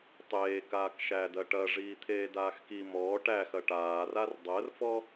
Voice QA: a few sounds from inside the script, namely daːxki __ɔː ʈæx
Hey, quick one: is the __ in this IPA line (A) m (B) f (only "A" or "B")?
A